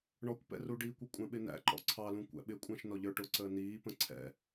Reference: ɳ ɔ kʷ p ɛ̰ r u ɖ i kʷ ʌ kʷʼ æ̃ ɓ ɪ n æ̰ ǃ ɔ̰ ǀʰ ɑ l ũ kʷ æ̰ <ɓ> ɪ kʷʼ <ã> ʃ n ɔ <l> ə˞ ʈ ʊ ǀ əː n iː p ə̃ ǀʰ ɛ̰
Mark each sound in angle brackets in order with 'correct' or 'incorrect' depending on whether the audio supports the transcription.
correct, incorrect, incorrect

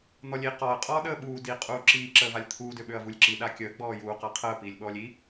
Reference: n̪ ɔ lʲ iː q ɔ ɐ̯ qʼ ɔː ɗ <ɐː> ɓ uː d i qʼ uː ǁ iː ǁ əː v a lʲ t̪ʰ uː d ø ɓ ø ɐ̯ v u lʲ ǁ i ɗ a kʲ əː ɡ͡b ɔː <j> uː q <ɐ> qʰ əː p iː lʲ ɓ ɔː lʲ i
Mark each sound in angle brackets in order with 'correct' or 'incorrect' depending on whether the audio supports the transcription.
incorrect, correct, incorrect

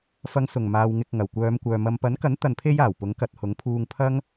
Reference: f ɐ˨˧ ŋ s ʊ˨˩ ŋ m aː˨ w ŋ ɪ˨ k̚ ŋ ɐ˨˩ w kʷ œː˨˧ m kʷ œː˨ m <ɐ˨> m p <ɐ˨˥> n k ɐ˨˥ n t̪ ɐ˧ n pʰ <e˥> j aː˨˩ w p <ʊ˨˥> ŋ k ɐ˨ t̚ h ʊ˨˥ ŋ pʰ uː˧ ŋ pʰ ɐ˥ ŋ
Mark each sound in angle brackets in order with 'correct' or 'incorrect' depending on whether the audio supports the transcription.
correct, correct, correct, correct

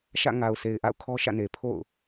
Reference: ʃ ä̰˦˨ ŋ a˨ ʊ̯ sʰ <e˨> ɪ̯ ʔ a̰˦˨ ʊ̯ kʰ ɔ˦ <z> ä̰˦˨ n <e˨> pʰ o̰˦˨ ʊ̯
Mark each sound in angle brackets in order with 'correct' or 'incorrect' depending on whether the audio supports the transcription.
correct, incorrect, correct

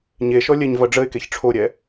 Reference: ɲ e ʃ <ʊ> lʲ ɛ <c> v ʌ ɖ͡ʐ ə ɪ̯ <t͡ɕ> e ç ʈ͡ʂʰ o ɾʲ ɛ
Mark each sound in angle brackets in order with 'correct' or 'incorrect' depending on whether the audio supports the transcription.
incorrect, incorrect, incorrect

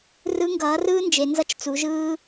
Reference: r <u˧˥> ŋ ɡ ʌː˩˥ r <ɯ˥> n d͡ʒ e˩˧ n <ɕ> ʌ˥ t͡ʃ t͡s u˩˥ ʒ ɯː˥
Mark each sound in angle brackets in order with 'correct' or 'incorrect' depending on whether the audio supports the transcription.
incorrect, incorrect, incorrect

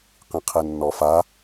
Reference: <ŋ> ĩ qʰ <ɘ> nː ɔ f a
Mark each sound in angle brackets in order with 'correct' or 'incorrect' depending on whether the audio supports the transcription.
incorrect, incorrect

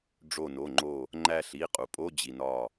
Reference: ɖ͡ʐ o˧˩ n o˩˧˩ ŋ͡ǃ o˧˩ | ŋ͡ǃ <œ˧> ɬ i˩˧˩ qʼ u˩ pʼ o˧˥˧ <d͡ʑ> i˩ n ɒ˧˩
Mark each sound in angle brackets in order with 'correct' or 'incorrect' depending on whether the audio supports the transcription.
incorrect, correct

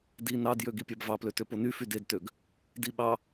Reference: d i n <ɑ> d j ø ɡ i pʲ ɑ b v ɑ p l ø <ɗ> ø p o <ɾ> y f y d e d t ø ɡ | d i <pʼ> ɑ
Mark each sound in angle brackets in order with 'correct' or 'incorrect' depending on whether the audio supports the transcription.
correct, incorrect, incorrect, incorrect

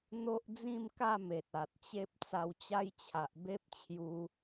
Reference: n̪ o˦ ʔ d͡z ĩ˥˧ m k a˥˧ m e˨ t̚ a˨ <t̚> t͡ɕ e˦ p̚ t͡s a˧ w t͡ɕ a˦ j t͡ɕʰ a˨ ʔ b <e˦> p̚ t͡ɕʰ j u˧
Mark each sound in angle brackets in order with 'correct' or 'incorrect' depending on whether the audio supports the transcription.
correct, correct

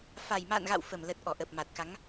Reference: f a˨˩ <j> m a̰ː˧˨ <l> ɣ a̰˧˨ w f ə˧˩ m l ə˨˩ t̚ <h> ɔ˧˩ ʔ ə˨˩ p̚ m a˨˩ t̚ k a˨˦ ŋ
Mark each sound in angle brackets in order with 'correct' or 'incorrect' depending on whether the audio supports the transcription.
correct, incorrect, incorrect

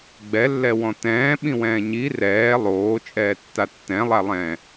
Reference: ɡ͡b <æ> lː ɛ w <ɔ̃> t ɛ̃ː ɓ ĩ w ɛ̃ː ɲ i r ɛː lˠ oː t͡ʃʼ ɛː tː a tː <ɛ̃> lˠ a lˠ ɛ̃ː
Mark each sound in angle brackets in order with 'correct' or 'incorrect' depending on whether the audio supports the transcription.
incorrect, correct, correct

